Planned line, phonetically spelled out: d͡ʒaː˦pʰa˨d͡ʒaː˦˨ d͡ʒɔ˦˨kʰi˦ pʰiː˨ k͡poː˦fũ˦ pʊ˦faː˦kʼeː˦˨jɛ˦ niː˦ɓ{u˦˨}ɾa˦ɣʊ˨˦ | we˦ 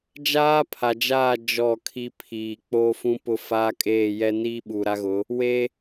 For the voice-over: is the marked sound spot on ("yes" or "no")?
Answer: no